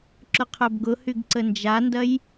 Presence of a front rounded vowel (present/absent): present